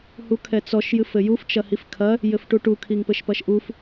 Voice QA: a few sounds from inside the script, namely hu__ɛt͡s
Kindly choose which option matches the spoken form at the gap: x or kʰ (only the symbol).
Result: kʰ